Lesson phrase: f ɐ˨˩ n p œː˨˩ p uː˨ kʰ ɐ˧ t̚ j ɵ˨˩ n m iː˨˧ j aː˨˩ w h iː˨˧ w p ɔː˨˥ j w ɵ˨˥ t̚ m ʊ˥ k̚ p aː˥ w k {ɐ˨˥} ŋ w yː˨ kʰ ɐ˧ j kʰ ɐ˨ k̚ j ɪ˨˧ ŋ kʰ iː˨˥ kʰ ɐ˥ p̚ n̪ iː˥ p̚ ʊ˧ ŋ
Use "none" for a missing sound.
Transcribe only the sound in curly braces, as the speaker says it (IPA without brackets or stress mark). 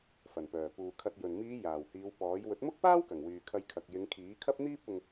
ɐ˨˩